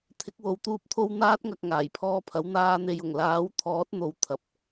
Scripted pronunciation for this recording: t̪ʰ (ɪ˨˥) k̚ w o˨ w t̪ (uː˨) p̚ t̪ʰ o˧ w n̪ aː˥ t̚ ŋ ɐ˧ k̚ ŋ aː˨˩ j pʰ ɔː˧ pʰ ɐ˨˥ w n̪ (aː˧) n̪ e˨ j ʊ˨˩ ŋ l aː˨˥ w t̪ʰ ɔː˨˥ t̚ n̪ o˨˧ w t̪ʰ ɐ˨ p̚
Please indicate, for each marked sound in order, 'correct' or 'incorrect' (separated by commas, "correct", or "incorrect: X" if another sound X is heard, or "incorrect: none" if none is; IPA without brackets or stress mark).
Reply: correct, incorrect: uː˧, correct